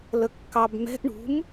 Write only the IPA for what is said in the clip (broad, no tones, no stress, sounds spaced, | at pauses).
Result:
l ə kː ɑ b m ɛ̤ ʔ ɳ ṳ m